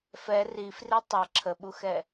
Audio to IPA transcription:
f ɛ r i f r i tˤ ʌ ǁʰ ə ɓ u x ɛ

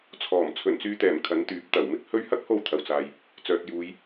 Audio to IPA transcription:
t͡sʰ ɔː˨˩ m t͡sʰ ɵ˨˩ n t͡s yː˧ t̪ ɛː˨˩ m kʰ ɐ˨˥ n t̪ yː˨˥ p̚ t̪ ɐ˨˩ w m ɪ˥ k̚ h ɵ˥ ɥ h ɐ˥ k̚ h o˧ w t̪ʰ ɐ˨ w t͡s aː˧ j | t͡s œː˨ t̚ j uː˨˧ j

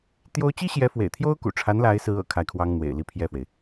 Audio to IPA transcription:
t̪ j o˥ ʊ̯ t͡ɕ i˥ ɕ j ɛ˧˥ f w ḛ˨˩ ɪ̯ t̪ʰ j o˥ ʊ̯ k ṵ˨˩ ʈ͡ʂʰ a˧˥ n l a˧˥ ɪ̯ s ɹ̩˧˥ ɤ̰˨˩ kʰ a˥˩ ɪ̯ kʰ w ɑ˥ ŋ n̪ w ḛ˨˩ ɪ̯ l i˥˧ pʰ j ɛ˥˩ f w e˩ ɪ̯

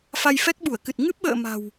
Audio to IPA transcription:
f a˧ j f ɛ˦˥ k̚ ɓ u˧˩ ə̯ k ɨ˨˩ t̚ ŋ ɨ˦˥ p̚ ɓ ə̰ː˧˨ m a̤˨˩ w

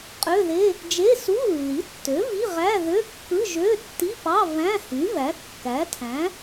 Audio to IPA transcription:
qʼ ø˧˥˧ ð e˧˥˧ | d͡ʒ e˧˥˧ s u˧˥˧ lː i˩˥ tː ø˩˥ v i˧˥˧ ʁ æ˧˥˧ ð ø˧˥˧ kː ɯ˧˥˧ ʒ ø˧˥˧ tː i˧˥˧ p ɑ˧˥˧ v æ̃˧˥˧ h y˩˥ v æ˩˥ kː æ˩˥ tʰ æ̃˩˥

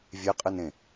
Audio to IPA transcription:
vʲ e qʼ ɨ n ẽ

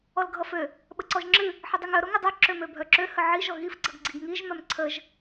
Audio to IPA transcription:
ɔ l ɡʱ ʌ f ø | ɓ ə ǀ ɔ ʒ ŋ͡ǁ ɨ | ħ ə dˤ ɨ ŋ œ ɾ o ŋ ə dˤ œ ǁ ø m ø bʱ œ ǁ ø h ə ʕ i ʒ ɔ ɣ i f ɡ͡ǀ ʌ ɡ ɡ͡ǀ i ɡ ŋ i ʒ m œ m ǀʰ ə ʒ

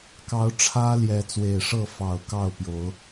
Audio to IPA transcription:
k ɑ˨˦ ʊ̯ ʈ͡ʂʰ ä˦ l j ɛ˨˦ t͡s w e˨˩ ɪ̯ ʂ ɤ˥˨ f ɑ˨˩ ʊ̯ k ɑ˥˨ ʊ̯ p j o˨˦ ʊ̯

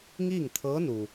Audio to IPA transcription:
ŋ iː˥˨ ŋ t̪ʰ ɤː˧˥ n u˩

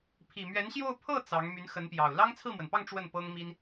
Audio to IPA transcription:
pʰ i˨˩ m ɥ ɛ˧˥ n ɕ j o˥˧ ʊ̯ pʰ ɤ˥˩ t͡s ɑ˧˥ ŋ m y˧˥ n x ə˧˥ n p j ɑ˨˩ ʊ̯ l ɑ˥ ŋ t͡sʰ ɹ̩˥˩ m w ə˩ n p ɑ˥˧ ŋ ʈ͡ʂ w ə˥˩ n p ɤ˥ ŋ m i˥ n

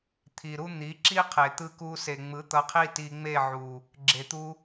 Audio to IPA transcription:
t̪ʰ i˨ ɾ u˦ n̪ i˨˦ ǁ i˦ qʰ e˨ t̪ ɯ˧ k u˧ s e˨ ŋ͡m ɯ˨˦ t̪ ʌ˧ qʰ i˦ t i˧ ŋ͡m e˦˨ ʕ u˨ | ɡ͡ǁ e˨ t̪ u˧

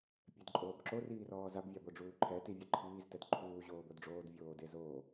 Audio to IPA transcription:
pʲ ɛ d ǃʼ oː b ǁ o r iː r ɔː z a b vʲ a b o ɖ͡ʐ uː ǃʰ ɛ t i vʲ ɤ ǃʰ iː z t ɛ d ǃʰ uː ʑ oː b o d ɖ͡ʐ oː d vʲ oː d e z oː

